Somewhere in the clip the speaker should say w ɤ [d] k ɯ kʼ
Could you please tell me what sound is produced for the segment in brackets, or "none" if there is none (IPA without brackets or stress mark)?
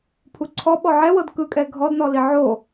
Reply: d